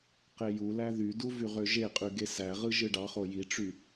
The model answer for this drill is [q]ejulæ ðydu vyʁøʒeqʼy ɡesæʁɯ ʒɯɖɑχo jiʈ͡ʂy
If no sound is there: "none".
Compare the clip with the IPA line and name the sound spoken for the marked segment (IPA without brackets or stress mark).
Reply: q